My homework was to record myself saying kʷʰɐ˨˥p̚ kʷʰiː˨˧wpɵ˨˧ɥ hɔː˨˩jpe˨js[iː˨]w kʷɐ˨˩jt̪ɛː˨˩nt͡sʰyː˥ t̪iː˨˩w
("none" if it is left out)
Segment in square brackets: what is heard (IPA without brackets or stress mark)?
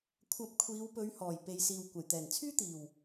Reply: iː˨